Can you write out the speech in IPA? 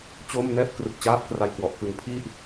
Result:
t͡ɕ oː˥˩ m n ɛː˥˩ p̚ k r ɯ˨˩ k̚ t͡ɕ aː˦˥ p̚ k r a˧ j k w ɔ˨˩ ʔ k ɯ˩˦ ŋ pʰ i˥˩ ʔ

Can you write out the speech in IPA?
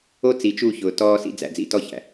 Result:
o˦ t͡s i˨ t͡ʃ u˦˨ ç ʊː˨ t ɔː˦ s ḭ˦ d͡z æ̰˨ d͡z ḭ˦ t ɔ˦ ç æ̰˨

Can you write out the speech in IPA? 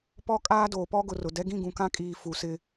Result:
p ɔ˦ kʼ aː˦ d oː˨ p ɔ˦ ɡ ʊ˨ r ʊ˨ d ɛ˦ ɡ ĩ˦˨ ɡ ũ˨ k ã˦ kʼ iː˨ f u˨ s ɪ˦

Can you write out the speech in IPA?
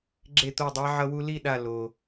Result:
ɡ͡ǁ e˥˨ t̪ o˥˨ dˤ a˦˥ ʕ ʌ˧ w u˧ l i˥˨ ɗ a˧˩ l o˩

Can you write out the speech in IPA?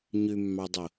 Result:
ɲ ʉ mː ɑ dˤ o

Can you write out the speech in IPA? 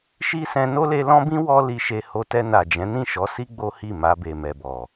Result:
ʃ i˦ s ɛ̃˧ n o˦ l e˧ l ɔ̃˦ b ĩ˦ w ɔ˧ l i˧ ʃ e˧ h o˧ t ɛ˧ n a˨ d͡ʒ ɛ̃˨˦ n ĩ˦˨ ʃ ɔ˨˦ s i˦ ɡ͡b o˦ h i˦˨ m a˧ b e˨ m ɛ˨ b ɔ˨

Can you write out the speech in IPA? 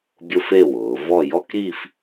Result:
bʲ ʊ˥ f e˥˧ w ʊː˩˧ v ɔ˥˧ j ɔ˥ k ɾ i˥˧ f

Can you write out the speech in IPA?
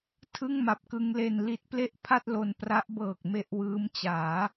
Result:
tʰ ɯ˥˩ ŋ m a˨˩ p̚ k ɯ˧ ŋ l e˧ n l i˦˥ t̚ p l e˥˩ ʔ pʰ a˥˩ t̚ l o˧ n p r a˦˥ ʔ b ɤː˨˩ k̚ m e˦˥ ʔ w ɯː˦˥ m t͡ɕ aː˩˦

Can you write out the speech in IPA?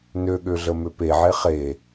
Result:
n ø ɠ ø ɮ ə m ø p e ʕ e χ e

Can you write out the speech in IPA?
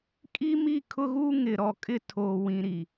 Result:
kʼ i˦ m i˦˨ kʰ ʊ˦ ɣ uː˦ ŋ ɪ˨ ɾ ɔ˨ kʼ ɪ˦˨ tʰ oː˨ w ĩ˨ ɾ i˨

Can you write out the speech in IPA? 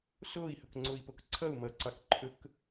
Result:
s o i̯ h ɵ k ŋ͡ǀ o i̯ p o k ǀʰ ʌ u̯ m ʌ ǀ ɑ k ǃʰ ɵ k

